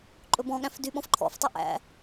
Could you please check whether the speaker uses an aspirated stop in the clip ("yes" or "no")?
yes